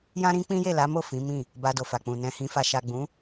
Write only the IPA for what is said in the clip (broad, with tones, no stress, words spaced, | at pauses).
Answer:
jã˦ɾĩ˦ k͡pĩ˦je˦˨la˨˦mo˦˨ fĩ˨˦mĩ˦˨ | ba˧do˨fa˨k͡pũ˨ nɛ̃˨hĩ˨fa˨ ʃa˨ɡ͡bũ˨˦